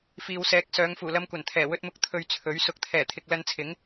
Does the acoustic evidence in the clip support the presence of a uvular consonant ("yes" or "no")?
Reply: no